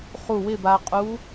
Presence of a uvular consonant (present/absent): present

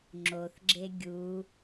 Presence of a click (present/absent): present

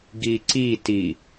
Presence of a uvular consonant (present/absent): absent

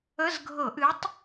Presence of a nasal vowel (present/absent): absent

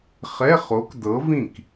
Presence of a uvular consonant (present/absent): present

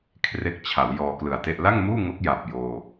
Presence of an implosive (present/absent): absent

